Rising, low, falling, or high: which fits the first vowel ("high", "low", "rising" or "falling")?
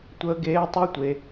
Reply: high